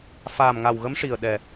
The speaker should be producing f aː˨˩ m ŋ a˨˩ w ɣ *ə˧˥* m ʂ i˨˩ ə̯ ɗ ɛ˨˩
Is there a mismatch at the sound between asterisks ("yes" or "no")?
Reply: no